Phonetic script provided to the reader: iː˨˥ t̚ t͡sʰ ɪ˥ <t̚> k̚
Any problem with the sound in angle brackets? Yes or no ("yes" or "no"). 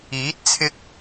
yes